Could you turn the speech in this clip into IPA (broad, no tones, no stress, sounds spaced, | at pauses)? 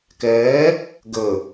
k ɛː | ɡ ə